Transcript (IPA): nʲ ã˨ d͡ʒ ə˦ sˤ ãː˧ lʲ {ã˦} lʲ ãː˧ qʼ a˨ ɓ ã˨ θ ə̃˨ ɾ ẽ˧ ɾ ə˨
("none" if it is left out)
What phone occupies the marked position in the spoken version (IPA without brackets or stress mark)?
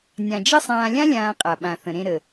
ã˦